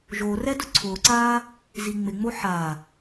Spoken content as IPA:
ʒ o r ɛ d ʊ ǀʰ ʊː ǀ aː | z i ŋ͡m ɪ ŋ͡m o ħ a

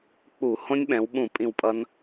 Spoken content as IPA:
k͡p u˧˩˧ h õ˦˥ nʲ ɓ ɛ̃˩˧ w ɓ ũ˧˩˧ pʼ ĩ˦˨ w pʼ ʌ˦˥ n

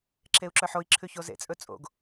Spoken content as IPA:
ǁʰ e u̯ ǁ œ ħ o i̯ ǁʰ ʉ ç o z ḛ t͡sʼ ɵ t͡sʼ o̰ ɡ

